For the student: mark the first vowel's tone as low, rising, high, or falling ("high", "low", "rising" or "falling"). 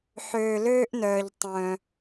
low